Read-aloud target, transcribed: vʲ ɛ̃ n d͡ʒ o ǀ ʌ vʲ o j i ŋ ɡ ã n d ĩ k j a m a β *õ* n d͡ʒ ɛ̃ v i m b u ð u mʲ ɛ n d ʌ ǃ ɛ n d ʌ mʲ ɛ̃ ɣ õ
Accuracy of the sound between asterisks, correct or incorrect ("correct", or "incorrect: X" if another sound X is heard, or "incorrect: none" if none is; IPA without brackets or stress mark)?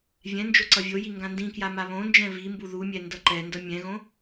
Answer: correct